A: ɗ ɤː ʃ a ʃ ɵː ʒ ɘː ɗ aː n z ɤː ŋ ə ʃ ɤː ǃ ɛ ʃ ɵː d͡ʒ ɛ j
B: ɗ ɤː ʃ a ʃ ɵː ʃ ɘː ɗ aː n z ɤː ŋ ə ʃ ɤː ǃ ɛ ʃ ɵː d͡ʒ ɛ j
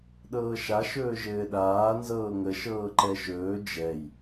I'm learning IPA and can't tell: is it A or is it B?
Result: A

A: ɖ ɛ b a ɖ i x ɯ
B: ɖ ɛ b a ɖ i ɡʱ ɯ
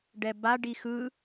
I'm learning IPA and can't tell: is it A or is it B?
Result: A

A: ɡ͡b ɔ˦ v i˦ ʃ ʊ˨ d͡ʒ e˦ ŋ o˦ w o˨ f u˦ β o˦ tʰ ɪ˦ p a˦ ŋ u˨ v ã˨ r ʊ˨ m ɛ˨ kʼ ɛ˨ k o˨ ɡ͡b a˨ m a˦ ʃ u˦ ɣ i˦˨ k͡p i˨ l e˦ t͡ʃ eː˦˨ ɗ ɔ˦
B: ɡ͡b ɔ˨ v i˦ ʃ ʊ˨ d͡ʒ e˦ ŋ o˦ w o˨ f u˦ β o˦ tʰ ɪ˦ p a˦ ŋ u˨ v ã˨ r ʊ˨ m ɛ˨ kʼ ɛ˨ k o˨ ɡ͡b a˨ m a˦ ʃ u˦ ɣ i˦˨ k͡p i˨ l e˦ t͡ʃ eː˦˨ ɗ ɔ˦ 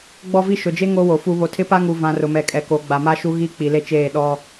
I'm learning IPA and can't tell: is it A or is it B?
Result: A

